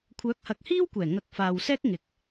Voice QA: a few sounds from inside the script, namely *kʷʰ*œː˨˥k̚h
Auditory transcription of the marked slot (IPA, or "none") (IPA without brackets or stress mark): kʷʰ